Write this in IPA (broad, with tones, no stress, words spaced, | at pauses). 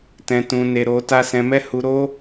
tɛ̃˧tũ˧ne˧ ɾo˧ta˦ sɛ̃˧mɛ˦hu˧ ɾo˦